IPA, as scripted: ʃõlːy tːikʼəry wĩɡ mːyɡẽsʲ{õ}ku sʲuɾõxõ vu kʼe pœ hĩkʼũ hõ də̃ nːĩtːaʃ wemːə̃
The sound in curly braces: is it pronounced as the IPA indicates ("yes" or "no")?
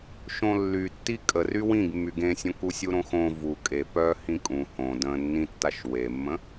yes